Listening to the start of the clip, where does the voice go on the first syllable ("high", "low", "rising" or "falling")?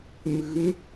rising